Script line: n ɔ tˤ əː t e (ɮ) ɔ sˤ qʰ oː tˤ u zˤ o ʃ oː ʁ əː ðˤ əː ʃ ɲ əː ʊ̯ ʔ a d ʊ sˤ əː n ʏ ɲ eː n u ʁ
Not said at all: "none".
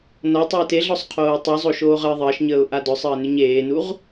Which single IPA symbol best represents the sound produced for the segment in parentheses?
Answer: ɮ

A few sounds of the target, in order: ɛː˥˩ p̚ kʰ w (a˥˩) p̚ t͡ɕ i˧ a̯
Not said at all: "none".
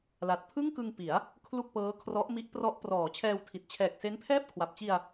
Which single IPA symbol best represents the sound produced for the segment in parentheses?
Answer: a˨˩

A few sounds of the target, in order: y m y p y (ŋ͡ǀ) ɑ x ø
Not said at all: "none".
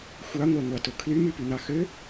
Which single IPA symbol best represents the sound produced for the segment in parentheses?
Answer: n̪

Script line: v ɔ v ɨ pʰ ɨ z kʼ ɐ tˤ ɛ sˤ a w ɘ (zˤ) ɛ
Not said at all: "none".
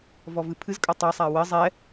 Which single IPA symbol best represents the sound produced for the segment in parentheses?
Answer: zˤ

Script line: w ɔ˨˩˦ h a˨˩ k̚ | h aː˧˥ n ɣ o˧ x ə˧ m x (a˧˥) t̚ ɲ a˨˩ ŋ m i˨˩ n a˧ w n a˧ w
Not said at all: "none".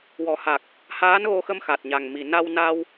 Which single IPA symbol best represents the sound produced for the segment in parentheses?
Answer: a˨˩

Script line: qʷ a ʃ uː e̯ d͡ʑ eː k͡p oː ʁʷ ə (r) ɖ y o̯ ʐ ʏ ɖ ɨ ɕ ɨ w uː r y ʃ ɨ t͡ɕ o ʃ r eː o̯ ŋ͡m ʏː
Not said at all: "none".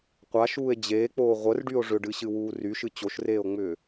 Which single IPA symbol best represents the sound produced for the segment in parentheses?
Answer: r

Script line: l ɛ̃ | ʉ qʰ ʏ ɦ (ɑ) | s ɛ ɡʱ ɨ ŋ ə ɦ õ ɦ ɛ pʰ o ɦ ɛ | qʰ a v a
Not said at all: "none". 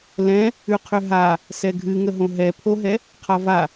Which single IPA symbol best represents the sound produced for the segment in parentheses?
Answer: a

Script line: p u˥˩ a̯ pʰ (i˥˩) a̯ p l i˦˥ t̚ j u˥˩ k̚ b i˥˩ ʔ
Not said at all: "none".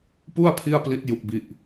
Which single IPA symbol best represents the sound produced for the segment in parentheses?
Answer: i˥˩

